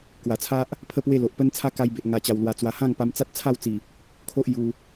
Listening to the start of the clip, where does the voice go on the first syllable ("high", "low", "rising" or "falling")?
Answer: low